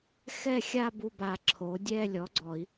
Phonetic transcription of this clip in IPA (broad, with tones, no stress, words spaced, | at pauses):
xɛ˥˧xʲa˥˧bu˥˩ba˨˩˦ ǁʰo˩˥dʲɛ˥˧ lʲɔ˩˥ɡ͡ǀɔ˨˩˦i̯